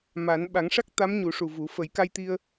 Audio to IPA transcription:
m a˨˩˦ n ɓ a˨˩˦ ŋ ʂ a˦˥ k̚ t̪ a˧˥ m ɲ u˨˩˦ ʂ u˨˩ v u˨˩˦ f ə˨˩˦ j k a˧ j t̪ i˧ ə̯

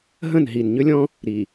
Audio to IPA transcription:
ɦ ə̃˦˨ n ɦ i˨ n ɲ ø˦ lʲ ɔ̃˦ | ɾ i˨

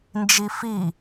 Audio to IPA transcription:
n d͡ʒ i f i

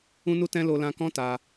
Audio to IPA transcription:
ũ˦ n u˦ t ɛ̃˦ l o˧ l ã˧ k ɔ̃˦ t a˧

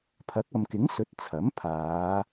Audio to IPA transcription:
pʰ ɐ˨˥ k̚ ɐ˨ m k ɪ˨˥ ŋ s ɵ˨˥ t̚ t͡sʰ ɐ˨˥ m pʰ aː˨˧

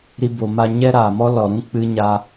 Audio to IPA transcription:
ɾ i˦ b o˧ m a˦ ɲ ɛ˦ ɾ aː˨ m ɔ˦ l ɔ˨ ɾ ũ˦ k͡p ɨ˧ ɲ a˧

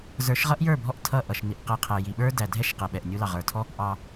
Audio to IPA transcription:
z ə˞˨˦ ʃ ʁ ʌ˦ ʔ j ə˞˦˨ bʱ ɔ˧ ʔ tʰ ʌ˦˨ ʔ ʌ˨ ʃ n i˨ ʔ q ɛ˧ qʰ ɛ˨ j i˨ ɓ ə˞˦ d æ˨ dʱ ɛ˦ ʃ q ɛ˨ ɓ ɛ˨ ʔ nʲ u˧ l ɑ˨ ʁ ə˞˨ tʰ ɔ˦ | ʔ ɑ˨

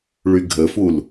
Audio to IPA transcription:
ɭ y ɡʱ ə f u l

